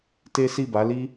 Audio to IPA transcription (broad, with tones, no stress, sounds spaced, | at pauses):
t e˦ s i˦˨ b a˨˦ l i˦